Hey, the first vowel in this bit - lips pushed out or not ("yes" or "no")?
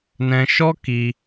no